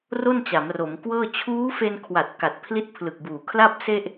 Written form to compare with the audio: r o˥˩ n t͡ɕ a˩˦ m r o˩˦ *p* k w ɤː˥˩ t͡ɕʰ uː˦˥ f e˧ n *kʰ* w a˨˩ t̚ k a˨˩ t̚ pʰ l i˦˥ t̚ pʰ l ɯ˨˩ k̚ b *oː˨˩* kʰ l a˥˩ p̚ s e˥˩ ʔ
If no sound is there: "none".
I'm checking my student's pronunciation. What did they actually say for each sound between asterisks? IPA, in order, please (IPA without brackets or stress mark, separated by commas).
m, kʰ, uː˨˩